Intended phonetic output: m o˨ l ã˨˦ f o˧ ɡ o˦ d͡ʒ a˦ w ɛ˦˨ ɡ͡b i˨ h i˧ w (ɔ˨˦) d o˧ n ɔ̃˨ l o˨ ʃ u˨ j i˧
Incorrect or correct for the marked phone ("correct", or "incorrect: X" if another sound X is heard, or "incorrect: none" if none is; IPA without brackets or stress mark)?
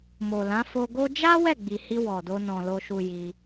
incorrect: ɔ˨